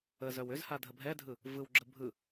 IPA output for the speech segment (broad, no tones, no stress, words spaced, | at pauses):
əzœw ʏz hadʱəbʱɛdʱɯ | vɯwɡ͡ǁə bʱɯ